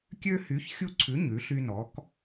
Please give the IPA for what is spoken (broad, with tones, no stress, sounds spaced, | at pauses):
kʲ ø˦ h y˨˥ ç xʲ u˦ ǀʰ ʉ˨˥ ɲ ʉ˨˥ ɬ y˦ n ɔ˨˥ k